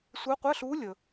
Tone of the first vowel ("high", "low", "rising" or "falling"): rising